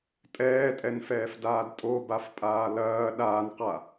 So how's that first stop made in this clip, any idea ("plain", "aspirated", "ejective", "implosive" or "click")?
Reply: ejective